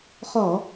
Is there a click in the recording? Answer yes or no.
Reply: no